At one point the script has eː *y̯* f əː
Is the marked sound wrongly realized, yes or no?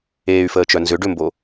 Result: no